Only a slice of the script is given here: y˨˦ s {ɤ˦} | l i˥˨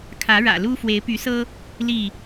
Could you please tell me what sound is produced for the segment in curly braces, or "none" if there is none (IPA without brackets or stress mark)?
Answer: ɤ˦